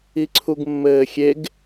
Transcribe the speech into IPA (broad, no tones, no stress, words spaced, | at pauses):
iǀʰuɡmːɘːxʲeɡ